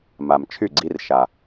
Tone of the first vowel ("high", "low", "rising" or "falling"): low